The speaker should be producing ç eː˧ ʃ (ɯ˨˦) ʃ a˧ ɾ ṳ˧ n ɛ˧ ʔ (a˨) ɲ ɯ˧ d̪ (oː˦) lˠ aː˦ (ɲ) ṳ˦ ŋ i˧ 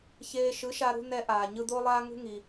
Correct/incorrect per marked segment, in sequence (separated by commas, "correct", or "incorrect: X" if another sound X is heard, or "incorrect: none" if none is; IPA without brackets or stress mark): correct, incorrect: aː˨, incorrect: o˦, incorrect: ŋ